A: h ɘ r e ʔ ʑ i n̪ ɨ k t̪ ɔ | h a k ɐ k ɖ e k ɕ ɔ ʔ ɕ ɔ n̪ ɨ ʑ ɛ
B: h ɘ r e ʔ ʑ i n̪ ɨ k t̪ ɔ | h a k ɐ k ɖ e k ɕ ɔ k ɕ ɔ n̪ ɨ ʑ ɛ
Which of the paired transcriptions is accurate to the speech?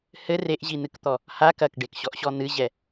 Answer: A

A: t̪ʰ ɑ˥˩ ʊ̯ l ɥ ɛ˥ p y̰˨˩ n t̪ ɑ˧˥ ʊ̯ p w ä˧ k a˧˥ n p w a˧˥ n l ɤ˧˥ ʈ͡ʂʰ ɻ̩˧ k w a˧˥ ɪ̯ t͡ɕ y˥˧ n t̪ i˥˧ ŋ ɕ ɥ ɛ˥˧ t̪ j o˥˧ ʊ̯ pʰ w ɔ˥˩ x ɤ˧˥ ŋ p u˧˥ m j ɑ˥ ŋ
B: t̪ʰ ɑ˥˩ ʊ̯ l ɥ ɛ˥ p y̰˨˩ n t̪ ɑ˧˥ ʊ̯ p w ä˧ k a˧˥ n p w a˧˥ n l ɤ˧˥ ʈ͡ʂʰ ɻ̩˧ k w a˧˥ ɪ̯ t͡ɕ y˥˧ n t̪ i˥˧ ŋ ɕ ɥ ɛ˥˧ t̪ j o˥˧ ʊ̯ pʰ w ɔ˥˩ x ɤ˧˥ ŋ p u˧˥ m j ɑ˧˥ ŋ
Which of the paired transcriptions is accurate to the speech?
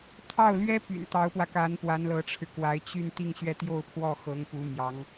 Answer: B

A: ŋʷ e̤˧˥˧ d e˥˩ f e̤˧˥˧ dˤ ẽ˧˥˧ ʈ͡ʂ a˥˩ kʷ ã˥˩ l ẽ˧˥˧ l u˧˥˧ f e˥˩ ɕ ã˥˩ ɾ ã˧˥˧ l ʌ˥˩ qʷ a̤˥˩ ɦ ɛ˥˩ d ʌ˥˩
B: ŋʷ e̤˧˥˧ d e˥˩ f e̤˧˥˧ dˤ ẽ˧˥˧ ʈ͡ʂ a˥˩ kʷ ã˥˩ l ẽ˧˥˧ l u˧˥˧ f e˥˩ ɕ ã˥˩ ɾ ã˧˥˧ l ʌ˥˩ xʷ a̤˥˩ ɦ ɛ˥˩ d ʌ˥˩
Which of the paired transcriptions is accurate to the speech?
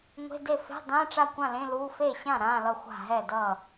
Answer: B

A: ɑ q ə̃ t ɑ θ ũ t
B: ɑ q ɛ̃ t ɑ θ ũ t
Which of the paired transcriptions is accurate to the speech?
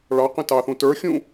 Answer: A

